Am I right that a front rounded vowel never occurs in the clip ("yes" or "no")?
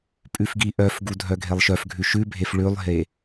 no